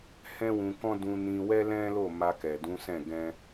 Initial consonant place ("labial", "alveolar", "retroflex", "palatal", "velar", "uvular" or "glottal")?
glottal